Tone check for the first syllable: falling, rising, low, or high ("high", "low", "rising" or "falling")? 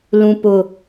high